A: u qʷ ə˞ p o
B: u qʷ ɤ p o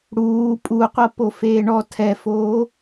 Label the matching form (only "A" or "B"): B